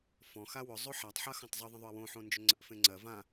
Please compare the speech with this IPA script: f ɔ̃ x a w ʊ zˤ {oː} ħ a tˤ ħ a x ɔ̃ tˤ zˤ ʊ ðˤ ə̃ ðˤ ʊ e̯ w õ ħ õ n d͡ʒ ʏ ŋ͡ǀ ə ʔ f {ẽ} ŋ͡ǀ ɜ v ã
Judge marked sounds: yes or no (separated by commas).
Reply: no, yes